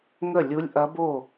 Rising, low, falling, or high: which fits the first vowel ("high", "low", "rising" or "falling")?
falling